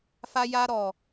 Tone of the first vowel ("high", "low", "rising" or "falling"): high